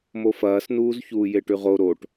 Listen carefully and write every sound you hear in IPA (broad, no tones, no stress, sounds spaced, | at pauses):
m o f ɐː s n uː z ç uː j e ʈ ʉ ʁ o ɾ o ʈ